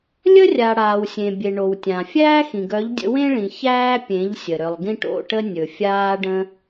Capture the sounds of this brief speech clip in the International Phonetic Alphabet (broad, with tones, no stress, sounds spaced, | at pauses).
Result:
lʲ ə˦ rʲ a˨ ɽ aː˨ w sʲ ẽ˨ bʲ e˨ ɳ o˨ w tʲ ã˨ fʲ æː˦ x ĩ˨ ɡ œ˨˦ ʎ dʲ ə̰˧ w ẽ˦ ɭ ĩ˨ ç æː˦ pʲ ẽ˨˦ ʎ sʲ ə˨ ɾ ʏ˨ lˠ ɡ ĩ˧ ʈ o̰˦˨ ʈ ə˧ nʲ ɵ˨ fʲ aː˧ ɖ ə̃˧